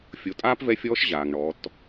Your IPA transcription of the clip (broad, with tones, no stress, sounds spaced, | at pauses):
fʲ o˩˧ tʼ aː˥ p v ɛ˧˥ fʲ ɔː˧˥ ʃ ʑ aː˩ ŋ ɳ ɔ˩˧ t